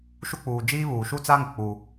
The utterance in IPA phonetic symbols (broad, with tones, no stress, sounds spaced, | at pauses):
ʃ u˦ k͡p uː˨ d͡ʒ iː˦ β uː˨ ʃ u˦ t͡s a˦ ŋ ʊ˨ k͡p u˦